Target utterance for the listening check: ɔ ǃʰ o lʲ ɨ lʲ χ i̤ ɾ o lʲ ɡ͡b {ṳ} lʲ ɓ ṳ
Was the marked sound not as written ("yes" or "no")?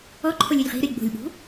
yes